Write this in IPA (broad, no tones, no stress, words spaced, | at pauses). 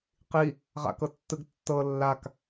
qi | ʁa̰kɤtːɯɡ tːɤ lːak